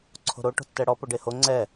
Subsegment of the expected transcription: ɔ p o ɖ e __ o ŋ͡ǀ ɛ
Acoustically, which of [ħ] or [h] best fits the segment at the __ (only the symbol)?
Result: h